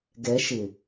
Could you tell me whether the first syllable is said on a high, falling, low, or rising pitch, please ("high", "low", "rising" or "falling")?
rising